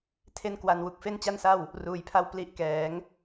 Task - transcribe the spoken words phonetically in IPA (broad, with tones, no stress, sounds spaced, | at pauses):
tʰ e˥˩ n k w a˧ n w u˨˩ k̚ f e˥˩ n t͡ɕ a˥˩ n s a˥˩ w | r uː˩˦ j pʰ a˥˩ w p l i˦˥ ʔ k ɛː˩˦ ŋ